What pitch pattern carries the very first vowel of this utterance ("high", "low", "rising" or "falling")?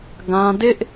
high